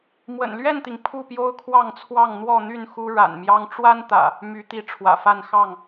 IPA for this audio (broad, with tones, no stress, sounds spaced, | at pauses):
m w ə̰˨˩ n l ɥ ɛ˥˨ n t̪ i˩ ŋ pʰ u˥˨ p j o˦ ʊ̯ kʰ w ɑ˥˨ ŋ t͡sʰ w ɑ˥˨ ŋ n̪ w ɔ˥˨ n̪ y˥˨ n x u˦ ɻ a̰˨˩ n m j ɑ˦ ŋ ʈ͡ʂ w a˦ n t̪ ä̰˨˩ | m y˨˦ t̪ i˨˦ ʈ͡ʂʰ w ä̰˨˩ f a˥˨ n x ɑ˥˨ ŋ